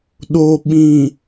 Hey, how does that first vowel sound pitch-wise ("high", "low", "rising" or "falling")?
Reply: low